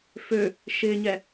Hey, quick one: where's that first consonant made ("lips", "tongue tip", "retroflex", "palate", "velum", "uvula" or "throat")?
lips